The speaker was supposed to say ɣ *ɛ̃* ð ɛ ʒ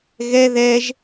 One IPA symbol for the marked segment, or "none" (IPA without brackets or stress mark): ɛ